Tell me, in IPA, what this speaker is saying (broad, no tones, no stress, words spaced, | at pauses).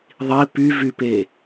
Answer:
ðˤi pyvype